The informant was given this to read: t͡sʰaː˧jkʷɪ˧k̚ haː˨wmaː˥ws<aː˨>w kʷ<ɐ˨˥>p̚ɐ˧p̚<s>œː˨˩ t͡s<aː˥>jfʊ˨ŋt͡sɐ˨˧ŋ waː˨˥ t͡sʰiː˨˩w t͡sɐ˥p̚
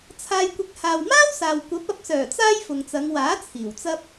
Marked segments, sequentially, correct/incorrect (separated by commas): correct, correct, correct, correct